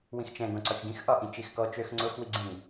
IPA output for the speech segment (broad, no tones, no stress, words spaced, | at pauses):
wĩxt͡ʃɛ̃ ɡõǀɒt͡ʃɡĩx ʔɒʔĩt͡ʃ ixkɔt͡ʃøx ŋ͡ǀʊx wiɡ͡ǀĩ